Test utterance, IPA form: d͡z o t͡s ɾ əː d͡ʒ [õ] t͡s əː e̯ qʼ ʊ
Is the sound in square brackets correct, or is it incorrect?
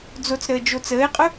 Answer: incorrect